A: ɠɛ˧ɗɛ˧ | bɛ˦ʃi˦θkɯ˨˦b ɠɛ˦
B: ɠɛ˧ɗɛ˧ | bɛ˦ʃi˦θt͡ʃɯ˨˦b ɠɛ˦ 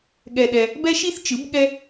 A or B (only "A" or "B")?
B